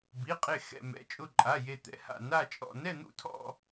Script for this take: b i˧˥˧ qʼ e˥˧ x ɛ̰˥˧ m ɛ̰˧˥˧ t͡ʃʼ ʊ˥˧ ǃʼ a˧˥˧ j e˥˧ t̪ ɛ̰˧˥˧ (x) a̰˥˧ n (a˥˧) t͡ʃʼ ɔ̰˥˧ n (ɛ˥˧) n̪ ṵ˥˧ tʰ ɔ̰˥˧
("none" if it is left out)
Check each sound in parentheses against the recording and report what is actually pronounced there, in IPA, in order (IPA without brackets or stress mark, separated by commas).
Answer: h, a˥˧, ɛ˥˧